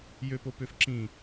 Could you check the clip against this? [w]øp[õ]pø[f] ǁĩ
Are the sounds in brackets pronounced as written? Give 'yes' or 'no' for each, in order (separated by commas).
no, no, yes